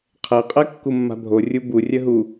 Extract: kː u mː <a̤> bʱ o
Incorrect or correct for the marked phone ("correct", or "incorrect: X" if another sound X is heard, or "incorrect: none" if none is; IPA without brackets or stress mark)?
correct